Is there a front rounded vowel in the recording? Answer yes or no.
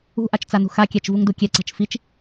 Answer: no